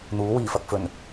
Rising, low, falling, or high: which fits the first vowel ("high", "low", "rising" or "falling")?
rising